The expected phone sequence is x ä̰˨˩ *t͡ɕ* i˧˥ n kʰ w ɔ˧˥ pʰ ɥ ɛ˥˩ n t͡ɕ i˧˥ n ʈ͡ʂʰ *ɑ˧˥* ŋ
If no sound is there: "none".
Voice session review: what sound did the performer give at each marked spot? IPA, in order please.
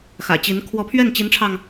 t͡ɕ, ɑ˧

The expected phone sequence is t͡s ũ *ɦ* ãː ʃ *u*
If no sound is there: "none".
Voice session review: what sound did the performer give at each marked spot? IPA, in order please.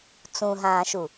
ɦ, u

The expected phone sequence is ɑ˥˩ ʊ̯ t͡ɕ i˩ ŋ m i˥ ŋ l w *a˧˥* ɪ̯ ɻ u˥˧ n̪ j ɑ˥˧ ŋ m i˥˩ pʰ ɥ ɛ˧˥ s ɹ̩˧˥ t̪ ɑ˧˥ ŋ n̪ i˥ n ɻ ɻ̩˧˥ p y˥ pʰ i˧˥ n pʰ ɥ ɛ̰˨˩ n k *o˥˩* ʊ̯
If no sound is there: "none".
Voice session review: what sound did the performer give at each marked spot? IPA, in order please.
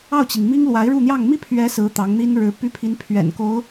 a˧˥, o˧˥

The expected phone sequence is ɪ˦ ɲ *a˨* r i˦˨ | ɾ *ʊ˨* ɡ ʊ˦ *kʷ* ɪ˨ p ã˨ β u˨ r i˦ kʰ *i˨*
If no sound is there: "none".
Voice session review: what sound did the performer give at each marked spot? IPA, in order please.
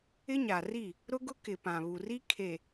a˨, ʊ˦, k, e˨

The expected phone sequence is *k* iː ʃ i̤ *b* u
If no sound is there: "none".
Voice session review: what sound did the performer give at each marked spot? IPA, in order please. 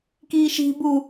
k, b

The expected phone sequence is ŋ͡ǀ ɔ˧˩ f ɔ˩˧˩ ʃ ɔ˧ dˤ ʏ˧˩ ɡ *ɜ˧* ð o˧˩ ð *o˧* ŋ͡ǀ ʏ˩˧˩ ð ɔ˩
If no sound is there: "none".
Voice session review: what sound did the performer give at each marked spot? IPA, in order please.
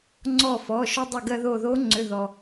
ɜ˧, o˧˥

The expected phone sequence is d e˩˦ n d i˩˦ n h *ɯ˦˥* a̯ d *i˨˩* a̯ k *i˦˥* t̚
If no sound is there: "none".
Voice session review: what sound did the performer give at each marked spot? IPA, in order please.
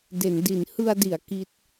ɯ˧, i˩˦, i˦˥

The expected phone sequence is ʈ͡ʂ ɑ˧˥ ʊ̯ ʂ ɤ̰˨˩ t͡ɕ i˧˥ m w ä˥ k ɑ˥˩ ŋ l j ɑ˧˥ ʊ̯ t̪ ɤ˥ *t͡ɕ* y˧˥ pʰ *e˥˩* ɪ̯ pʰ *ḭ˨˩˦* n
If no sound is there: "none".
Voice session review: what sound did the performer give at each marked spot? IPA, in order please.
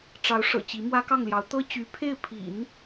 t͡ɕ, e˥˩, ḭ˨˩˦

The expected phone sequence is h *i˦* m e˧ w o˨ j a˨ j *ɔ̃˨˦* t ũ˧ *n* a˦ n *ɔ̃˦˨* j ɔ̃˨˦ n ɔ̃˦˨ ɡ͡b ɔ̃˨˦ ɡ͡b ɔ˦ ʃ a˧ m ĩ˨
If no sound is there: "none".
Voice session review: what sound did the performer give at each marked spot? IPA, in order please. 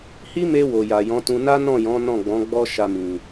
i˦, ɔ̃˨˦, n, ɔ̃˦˨

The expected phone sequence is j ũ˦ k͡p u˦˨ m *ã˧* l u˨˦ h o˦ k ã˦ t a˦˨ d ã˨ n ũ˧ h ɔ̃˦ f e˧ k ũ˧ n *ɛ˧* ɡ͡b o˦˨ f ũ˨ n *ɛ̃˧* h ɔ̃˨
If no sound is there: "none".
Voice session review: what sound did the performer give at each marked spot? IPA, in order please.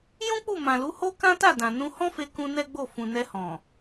ã˨, ɛ˦, ɛ˧

